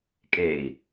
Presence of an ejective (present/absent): present